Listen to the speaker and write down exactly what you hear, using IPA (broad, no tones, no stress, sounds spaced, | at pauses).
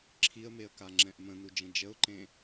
ǁʰ i ə̯ m e ə̯ k a ŋ͡ǁ ɛ̃ ʔ m ə̃ n u d͡ʒ ə̃ d͡ʒ ə ʊ̯ ǃ ẽ